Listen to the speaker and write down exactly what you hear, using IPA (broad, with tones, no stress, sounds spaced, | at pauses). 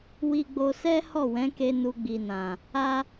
w i˧ ɡ͡b o˧ s ɛ˦ h ɔ˦˨ w ɛ̃˨˦ k e˧ n u˧ ɡ͡b i˨ n ã˨ | a˧